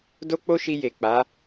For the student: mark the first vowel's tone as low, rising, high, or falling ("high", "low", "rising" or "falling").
high